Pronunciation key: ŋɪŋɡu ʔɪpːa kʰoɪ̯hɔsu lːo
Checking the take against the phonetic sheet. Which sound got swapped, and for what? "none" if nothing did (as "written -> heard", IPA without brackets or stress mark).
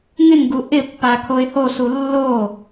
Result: ɔ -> o